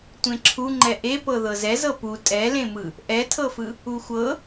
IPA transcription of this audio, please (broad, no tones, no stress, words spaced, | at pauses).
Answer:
tʷẽǁʰuŋ͡ǃɛ ʔepɤ ðɤzɛzɤ pu tʼɛlẽmɯ | ʔɛtʰɤfɯ | uxʷɤ